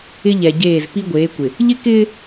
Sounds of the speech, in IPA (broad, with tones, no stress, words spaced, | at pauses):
ɪ˦ʎɛ˨ɟeː˦˨z pi˦ ɡʷeː˨˦kʷɪ˨ | ʎɪ˦kɪː˦